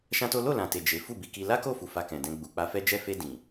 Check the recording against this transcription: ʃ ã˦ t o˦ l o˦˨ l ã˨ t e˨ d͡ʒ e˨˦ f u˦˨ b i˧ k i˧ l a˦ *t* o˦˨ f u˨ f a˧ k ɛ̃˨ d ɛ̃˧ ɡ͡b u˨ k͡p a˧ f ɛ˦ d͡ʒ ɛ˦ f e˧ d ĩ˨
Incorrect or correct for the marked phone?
incorrect: k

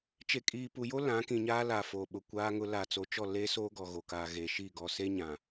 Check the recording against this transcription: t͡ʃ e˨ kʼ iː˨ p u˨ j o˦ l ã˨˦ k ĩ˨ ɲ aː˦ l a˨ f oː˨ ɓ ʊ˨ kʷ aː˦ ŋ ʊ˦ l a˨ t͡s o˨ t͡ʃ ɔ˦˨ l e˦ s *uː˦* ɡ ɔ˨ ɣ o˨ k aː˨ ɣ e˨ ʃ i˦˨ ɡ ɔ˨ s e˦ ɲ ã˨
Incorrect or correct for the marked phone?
incorrect: oː˦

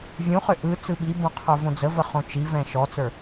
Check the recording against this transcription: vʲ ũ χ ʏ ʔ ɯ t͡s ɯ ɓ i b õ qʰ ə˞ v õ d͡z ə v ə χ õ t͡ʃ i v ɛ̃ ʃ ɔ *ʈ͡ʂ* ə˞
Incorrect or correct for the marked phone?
incorrect: t͡s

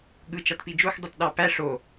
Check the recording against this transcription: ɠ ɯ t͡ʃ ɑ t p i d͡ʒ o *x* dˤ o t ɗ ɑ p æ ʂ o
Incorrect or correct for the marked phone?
correct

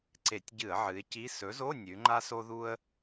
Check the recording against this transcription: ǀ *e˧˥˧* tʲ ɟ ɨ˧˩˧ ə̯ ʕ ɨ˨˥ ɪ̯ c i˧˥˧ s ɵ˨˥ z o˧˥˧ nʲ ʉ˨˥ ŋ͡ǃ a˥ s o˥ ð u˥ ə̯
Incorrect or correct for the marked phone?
incorrect: e˧˩˧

